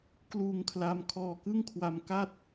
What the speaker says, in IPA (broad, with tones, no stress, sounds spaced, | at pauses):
k l uː˧ ŋ kʰ l a˦˥ m kʰ ɔː˧ k ɯ˥˩ ŋ kʰ w a˧ m k a˥˩ t̚